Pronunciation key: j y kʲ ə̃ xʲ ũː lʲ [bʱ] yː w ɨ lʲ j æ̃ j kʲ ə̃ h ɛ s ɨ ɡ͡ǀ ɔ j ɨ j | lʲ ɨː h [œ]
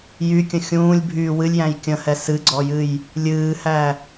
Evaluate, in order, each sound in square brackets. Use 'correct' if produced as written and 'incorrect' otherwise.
correct, incorrect: æ

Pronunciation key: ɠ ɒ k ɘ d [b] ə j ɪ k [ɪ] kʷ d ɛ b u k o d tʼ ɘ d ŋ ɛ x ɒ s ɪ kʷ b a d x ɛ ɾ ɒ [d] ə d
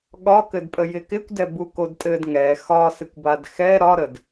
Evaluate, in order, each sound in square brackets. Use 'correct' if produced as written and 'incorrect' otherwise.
incorrect: pʼ, correct, incorrect: ɾ

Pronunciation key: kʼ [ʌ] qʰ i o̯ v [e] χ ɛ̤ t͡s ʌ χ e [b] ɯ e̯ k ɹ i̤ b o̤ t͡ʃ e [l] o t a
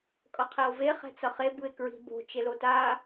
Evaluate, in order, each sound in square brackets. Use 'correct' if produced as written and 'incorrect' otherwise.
correct, correct, correct, correct

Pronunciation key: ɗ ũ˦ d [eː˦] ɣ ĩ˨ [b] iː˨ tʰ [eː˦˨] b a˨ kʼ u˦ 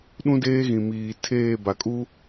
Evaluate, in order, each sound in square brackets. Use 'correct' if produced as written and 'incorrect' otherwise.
correct, incorrect: m, correct

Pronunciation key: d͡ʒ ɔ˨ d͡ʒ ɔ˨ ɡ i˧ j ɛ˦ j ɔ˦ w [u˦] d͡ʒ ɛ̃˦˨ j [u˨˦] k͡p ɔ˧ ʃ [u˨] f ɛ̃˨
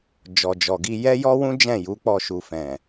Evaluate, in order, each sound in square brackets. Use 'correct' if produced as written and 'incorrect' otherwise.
incorrect: ũ˦, correct, correct

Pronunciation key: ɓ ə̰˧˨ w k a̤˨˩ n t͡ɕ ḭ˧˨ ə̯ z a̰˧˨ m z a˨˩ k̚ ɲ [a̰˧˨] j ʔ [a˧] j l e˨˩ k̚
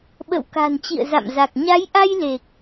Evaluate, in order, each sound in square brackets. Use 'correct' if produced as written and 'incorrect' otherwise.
incorrect: a˨˦, correct

